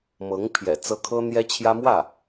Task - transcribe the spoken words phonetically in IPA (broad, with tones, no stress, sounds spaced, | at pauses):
m ɤ˧˥ ŋ pʰ j ɛ̰˨˩ t͡s ɤ˥ kʰ ɤ˥ n̪ j ɛ˥ t͡ɕʰ j ä˥ m w ä˥˩